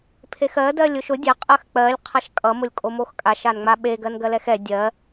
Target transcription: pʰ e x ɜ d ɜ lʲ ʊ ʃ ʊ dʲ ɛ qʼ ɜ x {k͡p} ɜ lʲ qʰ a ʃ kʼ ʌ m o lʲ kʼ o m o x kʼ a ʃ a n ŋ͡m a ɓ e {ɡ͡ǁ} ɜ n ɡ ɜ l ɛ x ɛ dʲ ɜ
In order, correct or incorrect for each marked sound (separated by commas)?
correct, incorrect